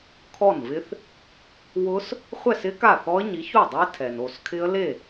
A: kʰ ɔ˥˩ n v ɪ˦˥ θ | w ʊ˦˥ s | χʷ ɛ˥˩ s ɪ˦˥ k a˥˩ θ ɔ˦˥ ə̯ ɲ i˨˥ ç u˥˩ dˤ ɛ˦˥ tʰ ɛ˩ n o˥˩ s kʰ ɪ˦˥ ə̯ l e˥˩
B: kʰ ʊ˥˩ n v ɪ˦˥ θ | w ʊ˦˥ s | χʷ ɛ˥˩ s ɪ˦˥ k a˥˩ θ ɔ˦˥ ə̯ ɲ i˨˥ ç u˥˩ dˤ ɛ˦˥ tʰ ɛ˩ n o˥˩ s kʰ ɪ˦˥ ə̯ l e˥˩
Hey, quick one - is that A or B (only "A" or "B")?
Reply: A